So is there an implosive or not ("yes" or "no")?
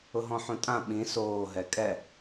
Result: yes